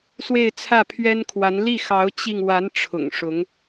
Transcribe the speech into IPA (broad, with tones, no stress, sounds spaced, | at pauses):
s w e˥˧ ɪ̯ t͡sʰ ä˥˩ pʰ ɥ ɛ˥ n kʰ w a˧˥ n l i˥˩ x ɑ˧˥ ʊ̯ t͡ɕ i˧ ŋ w a˧˥ n ʈ͡ʂʰ ʊ̰˨˩ ŋ ʂ ʊ˧˥ ŋ